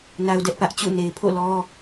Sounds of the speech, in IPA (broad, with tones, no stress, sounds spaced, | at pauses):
n a˦ ʊ̯ d ɛ˦ ʔ p ä˦ ʔ t͡ɕ ṵ˦˨ n e˨ ɪ̯ pʰ o̰˦˨ l ɔ˦